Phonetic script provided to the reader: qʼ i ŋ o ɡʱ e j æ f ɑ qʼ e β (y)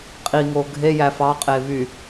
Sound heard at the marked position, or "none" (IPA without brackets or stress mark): y